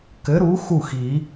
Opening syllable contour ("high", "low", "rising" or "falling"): rising